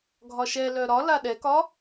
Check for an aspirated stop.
absent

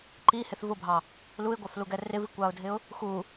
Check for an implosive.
absent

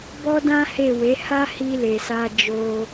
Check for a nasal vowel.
present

